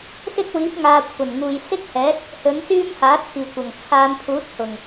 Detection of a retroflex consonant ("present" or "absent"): absent